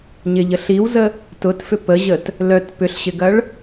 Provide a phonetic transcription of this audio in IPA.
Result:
ɲ ɪ ʎ ə ɬ i w z ə | t ʊ t f ʏ p ə ʑ ə t | l œ t p ʏ ɬ ɕ ɪ ɡ ɐ ɭ

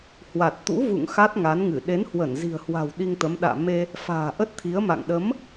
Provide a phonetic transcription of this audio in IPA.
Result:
h w a˨˩ t̚ t̪ ṵ˧˥ v ṵ˧˨ ŋ x a˦˥ t̚ ŋ a˨˦ n ŋ ɨ˧˩ ɗ e˨˦ n h w ə˧˩ n z i̤˨˩ ə̯ h w a̤˨˩ w ɗ i˧ ŋ t̪ ə˨˦ m ɗ a̰ː˧˨ m e˧ | f a̤ː˨˩ ʔ ə˦˥ t̚ t̪ʰ i˨˦ ə̯ m a̰˧˨ ŋ ɗ ə˨˦ m

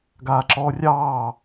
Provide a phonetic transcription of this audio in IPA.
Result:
ɡ aː ǁ ɔː rʲ ɑː

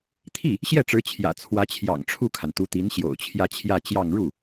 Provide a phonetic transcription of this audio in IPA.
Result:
t̪ʰ i˥˩ | ɕ j ɛ˥˩ ʈ͡ʂ ɻ̩˧˥ t͡ɕʰ j ä̰˨˩ t͡sʰ w ä˧˥ t͡ɕʰ j ɑ̰˨˩ ŋ ʈ͡ʂʰ u˥˩ kʰ a˩ n t̪ u˧˥ t̪ i˧˥ n ɕ j o̰˨˩ ʊ̯ t͡ɕʰ j ä˥˧ t͡ɕʰ j ä˥˧ t͡ɕ j ɑ˥˧ ŋ ɻ u˥˩

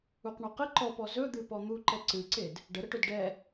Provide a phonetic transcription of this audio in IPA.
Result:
u q ɳ ɔ q ə ǃ ɔ p ɔ z ɵ d̪ ɨ p ɔ n̪ u ǃ ɛ ǀ ɨ ǀ e d | ɖ ə ɾ ə ʈ ɵ d ɖ ɛ

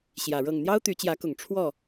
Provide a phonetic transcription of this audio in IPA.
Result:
ɕ j ä˨˩ ɻ ɤ˥˨ ŋ n̪ j ɑ˦ ʊ̯ t̪ y˨˦ t͡ɕ j ä˨˦ k ʊ˨˩ ŋ ʈ͡ʂʰ w ɔ˥˨

